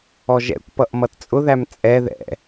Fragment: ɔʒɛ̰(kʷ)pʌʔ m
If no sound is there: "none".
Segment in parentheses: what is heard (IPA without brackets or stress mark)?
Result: kʷ